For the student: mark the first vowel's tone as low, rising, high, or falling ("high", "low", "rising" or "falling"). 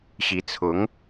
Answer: rising